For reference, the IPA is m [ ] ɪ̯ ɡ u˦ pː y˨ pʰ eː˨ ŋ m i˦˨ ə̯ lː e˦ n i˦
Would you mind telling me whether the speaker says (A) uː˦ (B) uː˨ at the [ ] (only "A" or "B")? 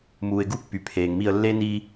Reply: B